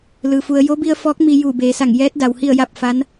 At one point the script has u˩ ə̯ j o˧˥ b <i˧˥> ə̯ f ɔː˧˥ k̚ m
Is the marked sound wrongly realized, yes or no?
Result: yes